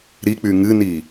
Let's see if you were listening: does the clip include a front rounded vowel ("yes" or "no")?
yes